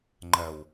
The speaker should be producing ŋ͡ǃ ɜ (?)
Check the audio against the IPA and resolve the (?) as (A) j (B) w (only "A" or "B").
B